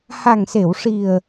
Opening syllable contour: low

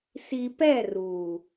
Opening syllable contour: low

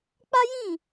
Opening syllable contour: high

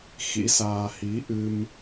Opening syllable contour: rising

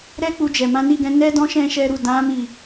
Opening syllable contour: high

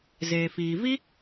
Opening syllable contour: low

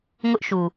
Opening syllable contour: high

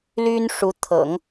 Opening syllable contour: high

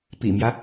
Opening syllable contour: low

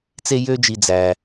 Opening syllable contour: high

